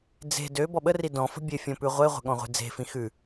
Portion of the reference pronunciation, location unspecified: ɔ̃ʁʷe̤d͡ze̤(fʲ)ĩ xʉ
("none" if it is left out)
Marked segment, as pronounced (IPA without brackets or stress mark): f